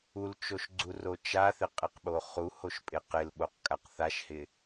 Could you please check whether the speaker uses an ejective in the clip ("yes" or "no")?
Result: yes